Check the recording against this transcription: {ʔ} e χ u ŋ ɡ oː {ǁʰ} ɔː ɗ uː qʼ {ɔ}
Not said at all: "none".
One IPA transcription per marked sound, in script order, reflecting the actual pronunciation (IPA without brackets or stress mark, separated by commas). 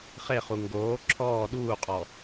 χ, ǁʰ, ɔ